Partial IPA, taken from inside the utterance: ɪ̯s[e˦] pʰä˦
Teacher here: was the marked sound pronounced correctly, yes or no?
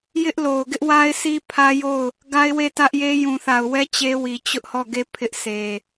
no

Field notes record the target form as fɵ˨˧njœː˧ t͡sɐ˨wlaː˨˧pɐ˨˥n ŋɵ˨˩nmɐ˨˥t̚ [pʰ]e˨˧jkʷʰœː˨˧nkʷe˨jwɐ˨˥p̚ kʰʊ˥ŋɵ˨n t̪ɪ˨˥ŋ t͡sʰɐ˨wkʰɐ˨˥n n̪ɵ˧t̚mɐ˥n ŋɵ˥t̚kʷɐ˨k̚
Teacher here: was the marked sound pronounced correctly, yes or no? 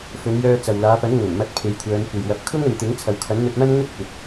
yes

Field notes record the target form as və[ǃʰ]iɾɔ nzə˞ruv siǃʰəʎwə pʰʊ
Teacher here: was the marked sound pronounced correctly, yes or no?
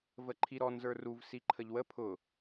yes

